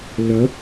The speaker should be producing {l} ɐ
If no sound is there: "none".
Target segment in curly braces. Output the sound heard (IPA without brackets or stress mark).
l